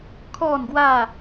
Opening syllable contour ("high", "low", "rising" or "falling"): falling